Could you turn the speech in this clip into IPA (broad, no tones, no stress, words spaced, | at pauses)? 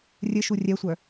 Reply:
rʲɘʃu rʲɛsʷœ